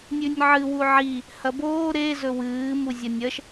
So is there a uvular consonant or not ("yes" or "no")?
no